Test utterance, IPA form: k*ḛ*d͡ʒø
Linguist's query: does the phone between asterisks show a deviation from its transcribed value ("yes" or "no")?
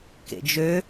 no